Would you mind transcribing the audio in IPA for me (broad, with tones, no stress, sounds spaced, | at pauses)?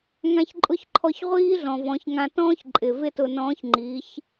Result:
ŋ ã˧ ç ǃʼ ʊ˧˥ ç ǃʰ ɔ˧ ç ʁʷ iː˥ ɮ ɔ̃˩ v ɔ̃˩˧ ç ŋ ã˧ t ɔ̃ː˥ ç ǃʼ ɪ˩ v ɪ˥ t ʊ˧ n ɔ̃ː˧˥ ç ŋ͡ǃ iː˩˧ ç